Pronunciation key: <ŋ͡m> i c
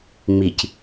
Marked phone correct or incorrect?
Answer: correct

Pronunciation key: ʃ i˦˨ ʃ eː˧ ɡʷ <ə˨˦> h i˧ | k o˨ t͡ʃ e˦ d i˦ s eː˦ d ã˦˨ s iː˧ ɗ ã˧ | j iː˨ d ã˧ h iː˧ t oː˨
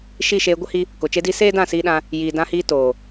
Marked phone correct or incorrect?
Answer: incorrect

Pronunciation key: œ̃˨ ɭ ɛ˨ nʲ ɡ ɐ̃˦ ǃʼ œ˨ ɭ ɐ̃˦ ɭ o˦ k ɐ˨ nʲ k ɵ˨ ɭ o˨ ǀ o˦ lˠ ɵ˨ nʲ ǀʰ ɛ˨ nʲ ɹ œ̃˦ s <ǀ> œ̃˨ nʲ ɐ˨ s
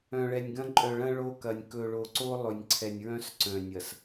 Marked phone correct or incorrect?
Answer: correct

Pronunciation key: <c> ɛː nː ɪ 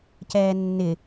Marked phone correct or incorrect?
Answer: correct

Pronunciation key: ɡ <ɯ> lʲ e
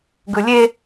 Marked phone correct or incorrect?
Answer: correct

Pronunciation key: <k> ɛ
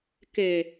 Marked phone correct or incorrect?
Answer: correct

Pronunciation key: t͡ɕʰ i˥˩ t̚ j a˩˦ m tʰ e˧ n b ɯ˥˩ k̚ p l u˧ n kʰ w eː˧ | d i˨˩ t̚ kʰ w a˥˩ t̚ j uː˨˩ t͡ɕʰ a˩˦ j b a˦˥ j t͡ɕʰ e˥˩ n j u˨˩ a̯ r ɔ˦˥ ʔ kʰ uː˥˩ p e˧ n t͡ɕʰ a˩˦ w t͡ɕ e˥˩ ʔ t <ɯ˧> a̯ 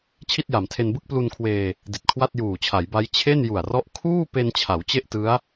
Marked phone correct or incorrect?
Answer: incorrect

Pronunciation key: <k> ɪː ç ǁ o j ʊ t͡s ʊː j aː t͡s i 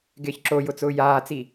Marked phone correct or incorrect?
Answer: incorrect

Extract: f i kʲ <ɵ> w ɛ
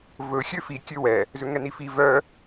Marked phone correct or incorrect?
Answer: incorrect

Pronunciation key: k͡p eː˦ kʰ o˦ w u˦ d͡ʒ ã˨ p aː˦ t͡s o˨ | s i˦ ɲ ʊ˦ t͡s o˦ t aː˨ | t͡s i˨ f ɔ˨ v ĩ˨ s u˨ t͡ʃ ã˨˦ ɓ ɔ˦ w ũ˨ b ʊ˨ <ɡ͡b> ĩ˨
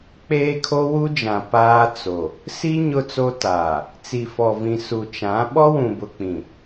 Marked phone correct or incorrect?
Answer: incorrect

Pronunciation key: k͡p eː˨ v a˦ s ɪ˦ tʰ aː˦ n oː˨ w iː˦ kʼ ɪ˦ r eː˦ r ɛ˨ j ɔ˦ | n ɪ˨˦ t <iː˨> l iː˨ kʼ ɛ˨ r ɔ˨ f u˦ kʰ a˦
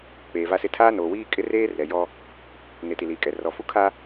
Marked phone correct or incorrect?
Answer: incorrect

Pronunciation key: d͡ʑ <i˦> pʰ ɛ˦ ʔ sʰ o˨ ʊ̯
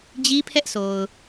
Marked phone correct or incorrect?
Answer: correct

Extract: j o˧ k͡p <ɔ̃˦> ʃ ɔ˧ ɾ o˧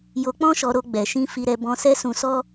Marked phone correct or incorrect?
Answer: correct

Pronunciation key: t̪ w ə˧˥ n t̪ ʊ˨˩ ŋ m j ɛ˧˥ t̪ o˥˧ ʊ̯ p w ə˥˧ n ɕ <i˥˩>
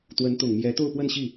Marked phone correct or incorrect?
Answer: correct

